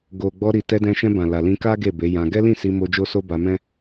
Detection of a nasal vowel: present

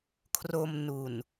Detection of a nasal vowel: absent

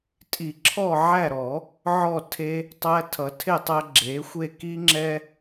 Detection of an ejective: present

